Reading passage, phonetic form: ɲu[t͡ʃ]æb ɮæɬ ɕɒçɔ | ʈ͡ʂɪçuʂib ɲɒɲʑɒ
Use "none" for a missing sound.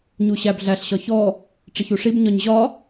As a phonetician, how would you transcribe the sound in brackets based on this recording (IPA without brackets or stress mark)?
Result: ɕ